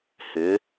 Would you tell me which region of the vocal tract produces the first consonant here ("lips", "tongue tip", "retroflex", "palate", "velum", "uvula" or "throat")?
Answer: throat